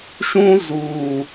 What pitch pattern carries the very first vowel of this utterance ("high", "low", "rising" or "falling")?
high